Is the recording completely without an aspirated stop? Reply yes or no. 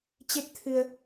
no